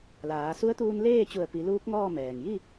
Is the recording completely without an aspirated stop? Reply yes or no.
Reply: yes